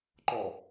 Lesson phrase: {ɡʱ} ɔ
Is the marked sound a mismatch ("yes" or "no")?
yes